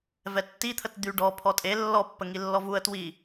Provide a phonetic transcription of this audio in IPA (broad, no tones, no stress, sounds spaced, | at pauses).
v ɛ tː i t̪ʰ ə t d̪ y ɖ ɔ pʰ ɔ tʼ e lː ɔ pː ə ŋ i lː ɔ v u ə̯ t w i